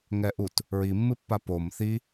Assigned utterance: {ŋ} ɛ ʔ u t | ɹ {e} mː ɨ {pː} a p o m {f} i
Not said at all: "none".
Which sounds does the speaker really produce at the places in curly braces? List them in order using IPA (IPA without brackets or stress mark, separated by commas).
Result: ŋ, i, pː, θ